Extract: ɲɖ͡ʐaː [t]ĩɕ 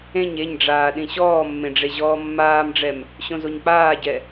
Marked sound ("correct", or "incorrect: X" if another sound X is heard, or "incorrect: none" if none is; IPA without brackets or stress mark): incorrect: ɗ